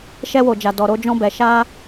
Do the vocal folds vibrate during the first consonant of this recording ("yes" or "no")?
no